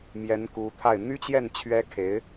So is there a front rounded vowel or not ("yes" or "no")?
yes